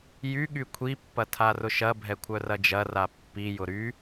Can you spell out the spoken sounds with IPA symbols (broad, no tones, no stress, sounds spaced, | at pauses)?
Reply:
j y ɠ y kʷʰ i pː ɐ tʰ a r ʊ ʃ ɐ bʱ ɛ kʷʰ œ r ɐ d͡ʒ ɐ r a pː i j ʊ ɾ y